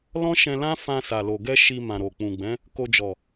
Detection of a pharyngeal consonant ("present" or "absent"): absent